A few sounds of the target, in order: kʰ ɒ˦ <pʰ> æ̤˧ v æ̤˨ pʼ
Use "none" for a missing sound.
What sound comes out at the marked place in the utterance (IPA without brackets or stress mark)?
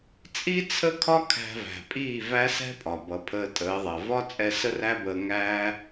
kʰ